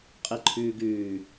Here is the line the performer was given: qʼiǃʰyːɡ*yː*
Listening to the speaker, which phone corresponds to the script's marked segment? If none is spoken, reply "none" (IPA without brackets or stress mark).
yː